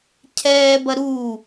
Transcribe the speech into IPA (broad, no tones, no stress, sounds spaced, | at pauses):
cʰ ɛː b ɐ ɾ u